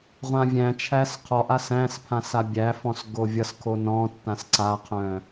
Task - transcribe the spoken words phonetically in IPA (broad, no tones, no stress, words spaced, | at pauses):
ʁʷãvʲæ̃t͡ʃʰæs qʰɔʔas æ̃spʰãs abʲæfɔ̃s ɡovʲʌskʰo nɔ̃tːãs ǀaqʰœ̃